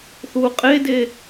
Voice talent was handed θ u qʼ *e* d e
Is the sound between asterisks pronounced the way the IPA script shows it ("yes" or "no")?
yes